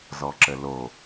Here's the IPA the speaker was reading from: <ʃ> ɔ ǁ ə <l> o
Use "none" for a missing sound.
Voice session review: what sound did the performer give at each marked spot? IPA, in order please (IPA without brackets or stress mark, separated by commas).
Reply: z, l